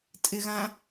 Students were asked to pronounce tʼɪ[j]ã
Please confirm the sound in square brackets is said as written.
no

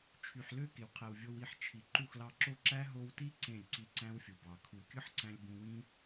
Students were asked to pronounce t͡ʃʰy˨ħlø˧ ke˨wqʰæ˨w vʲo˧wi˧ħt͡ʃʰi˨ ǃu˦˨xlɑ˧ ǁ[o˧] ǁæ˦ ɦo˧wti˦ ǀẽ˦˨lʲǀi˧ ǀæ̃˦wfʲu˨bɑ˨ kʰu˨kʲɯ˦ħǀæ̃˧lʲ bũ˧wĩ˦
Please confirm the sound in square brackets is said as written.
yes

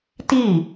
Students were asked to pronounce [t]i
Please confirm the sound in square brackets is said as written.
yes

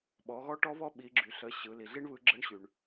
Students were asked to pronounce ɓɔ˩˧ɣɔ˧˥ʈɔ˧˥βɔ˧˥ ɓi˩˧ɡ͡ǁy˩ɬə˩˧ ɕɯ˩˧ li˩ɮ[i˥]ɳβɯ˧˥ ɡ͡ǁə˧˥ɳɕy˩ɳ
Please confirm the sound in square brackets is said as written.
yes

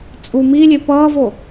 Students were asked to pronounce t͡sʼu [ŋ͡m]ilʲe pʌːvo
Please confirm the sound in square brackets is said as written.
no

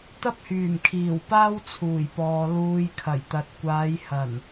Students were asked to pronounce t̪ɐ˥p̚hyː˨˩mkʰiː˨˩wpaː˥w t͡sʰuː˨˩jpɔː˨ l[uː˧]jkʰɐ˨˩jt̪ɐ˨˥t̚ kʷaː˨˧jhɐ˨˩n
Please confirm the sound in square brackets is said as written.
yes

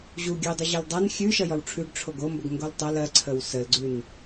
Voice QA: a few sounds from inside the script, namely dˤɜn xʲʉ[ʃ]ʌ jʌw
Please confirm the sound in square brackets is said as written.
yes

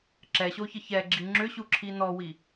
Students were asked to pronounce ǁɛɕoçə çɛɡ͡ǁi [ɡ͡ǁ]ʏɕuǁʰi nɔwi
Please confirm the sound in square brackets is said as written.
no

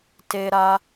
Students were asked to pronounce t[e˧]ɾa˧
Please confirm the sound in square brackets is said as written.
yes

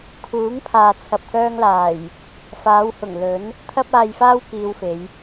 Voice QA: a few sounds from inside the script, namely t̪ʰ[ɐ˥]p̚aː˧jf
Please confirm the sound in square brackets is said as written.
yes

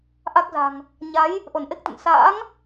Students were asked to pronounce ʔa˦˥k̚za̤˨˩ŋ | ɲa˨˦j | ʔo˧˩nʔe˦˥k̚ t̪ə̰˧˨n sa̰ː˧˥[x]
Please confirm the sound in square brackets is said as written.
no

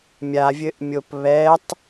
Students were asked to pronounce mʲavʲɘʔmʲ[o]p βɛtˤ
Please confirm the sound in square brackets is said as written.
yes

